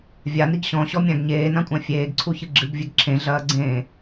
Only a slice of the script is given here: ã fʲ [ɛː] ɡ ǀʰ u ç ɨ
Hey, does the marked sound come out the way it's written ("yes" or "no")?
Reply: no